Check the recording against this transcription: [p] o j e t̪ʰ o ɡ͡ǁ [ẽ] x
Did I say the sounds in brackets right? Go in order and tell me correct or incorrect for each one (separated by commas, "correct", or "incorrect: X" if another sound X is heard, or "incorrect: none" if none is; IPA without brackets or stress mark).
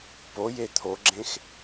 correct, correct